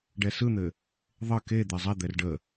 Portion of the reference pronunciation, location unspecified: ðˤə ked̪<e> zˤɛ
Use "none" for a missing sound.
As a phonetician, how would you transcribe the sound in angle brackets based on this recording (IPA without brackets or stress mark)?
e